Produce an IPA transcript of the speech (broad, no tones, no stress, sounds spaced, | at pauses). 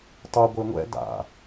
tˤ u ɡʷ e ŋʷ ɛ̰ d a̰